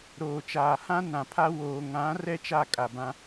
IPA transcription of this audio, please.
ɾoː˨t͡ʃaː˨hã˦ nã˨pʰa˦ woː˨ŋã˨˦ rɛ˦t͡ʃa˦˨kʼa˨bã˦

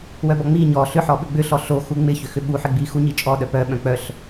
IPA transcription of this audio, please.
wœbɔŋ͡mi ɲɔ ɬʏħɔɓʏ ɡ͡bʏɬɔ ɬo xuŋ͡mɪ çʏxʏɓuħɪ ɡ͡bixuɲit͡ʃʼɔ ɗœpœ ɓœ̃k͡pœɬ

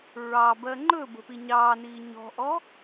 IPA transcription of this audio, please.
ɹɑbɜ ŋ͡ǃɵ bə̤piɲɑːniː ɲɔ̤ʔɔ

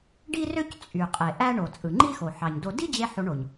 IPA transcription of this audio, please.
ɖi˥rø˥c t͡sʼy˩ qʼe˩ʔæ˧ ɳo˩ t͡sʼɯ˩ŋ͡ǃi˥xo˩ ħɑ˩ɲdo˧ di˥d͡ʑe˧ ħo˧ɳo˩ɲ

